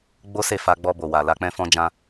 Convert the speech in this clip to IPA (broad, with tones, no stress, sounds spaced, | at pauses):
ɡ͡b o˦ s e˦˨ f a˧ ɡ͡b ɔ˧ b o˨ w a˨ l a˧ k͡p ɛ̃˦ f ɔ̃˦ d͡ʒ ã˦